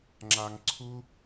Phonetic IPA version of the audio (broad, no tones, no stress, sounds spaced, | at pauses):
ŋ͡ǁ a ŋ ǀʰ u